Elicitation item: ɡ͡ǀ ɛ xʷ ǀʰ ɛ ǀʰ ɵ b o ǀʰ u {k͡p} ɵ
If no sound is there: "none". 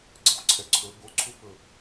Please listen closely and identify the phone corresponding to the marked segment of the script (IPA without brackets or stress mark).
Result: p